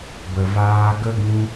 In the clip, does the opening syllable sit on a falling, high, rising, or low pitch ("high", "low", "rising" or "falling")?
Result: low